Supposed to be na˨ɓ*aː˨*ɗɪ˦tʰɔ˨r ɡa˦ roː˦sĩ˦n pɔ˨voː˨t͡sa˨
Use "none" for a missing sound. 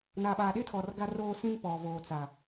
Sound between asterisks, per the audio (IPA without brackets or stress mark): aː˨